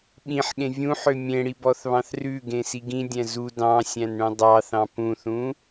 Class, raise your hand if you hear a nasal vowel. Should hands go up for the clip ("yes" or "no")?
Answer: yes